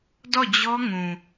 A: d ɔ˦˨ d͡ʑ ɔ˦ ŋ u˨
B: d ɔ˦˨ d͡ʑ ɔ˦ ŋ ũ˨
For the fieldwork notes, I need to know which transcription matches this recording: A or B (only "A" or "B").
B